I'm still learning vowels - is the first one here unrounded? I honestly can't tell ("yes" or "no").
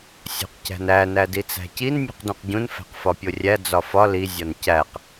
no